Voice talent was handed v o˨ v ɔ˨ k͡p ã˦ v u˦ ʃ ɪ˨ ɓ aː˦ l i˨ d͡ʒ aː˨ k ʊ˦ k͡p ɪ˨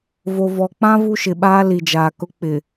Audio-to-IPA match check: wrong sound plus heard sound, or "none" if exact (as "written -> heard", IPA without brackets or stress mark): none